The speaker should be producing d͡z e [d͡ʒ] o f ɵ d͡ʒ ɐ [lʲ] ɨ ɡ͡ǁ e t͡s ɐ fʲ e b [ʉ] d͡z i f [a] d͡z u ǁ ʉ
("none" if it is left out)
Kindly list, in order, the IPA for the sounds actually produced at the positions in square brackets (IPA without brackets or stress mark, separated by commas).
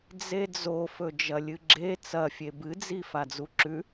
d͡z, lʲ, ɨ, a